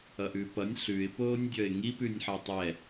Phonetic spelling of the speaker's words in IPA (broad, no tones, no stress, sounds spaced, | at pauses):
ʌ ʔ ʉ p ʌ nʲ ɬ ʉ ɪ̯ p oː nʲ dʲ ʌ ɪ̯ ŋ i p ʉ nʲ ħ ɒ tˤ ɛ